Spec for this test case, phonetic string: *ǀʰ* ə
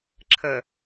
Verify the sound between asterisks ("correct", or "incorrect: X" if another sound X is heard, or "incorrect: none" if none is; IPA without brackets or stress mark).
incorrect: ǁʰ